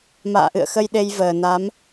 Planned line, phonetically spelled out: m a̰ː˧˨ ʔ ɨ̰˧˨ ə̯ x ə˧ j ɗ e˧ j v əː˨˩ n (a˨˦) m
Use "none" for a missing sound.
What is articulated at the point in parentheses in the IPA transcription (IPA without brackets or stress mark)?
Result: a˨˦